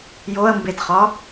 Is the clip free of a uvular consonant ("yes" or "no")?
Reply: no